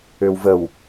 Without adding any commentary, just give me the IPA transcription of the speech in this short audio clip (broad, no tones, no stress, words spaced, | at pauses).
øwvəw